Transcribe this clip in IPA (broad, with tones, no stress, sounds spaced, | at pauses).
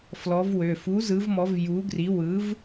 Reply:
f l ɔ˨˥ v w ø˩˧˩ f u˨˥ z ɯ˨˥ v m ɔ˨˥ v j u˨˥ ɡ r i˨˥ w ɯ˨˥ v